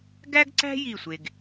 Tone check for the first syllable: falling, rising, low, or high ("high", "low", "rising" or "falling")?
high